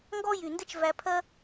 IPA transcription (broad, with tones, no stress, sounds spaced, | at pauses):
ŋ ɡ ɔ˦ j y˨ n d ɘ˦ t͡ʃ v æ˧ pʰ ɜ˦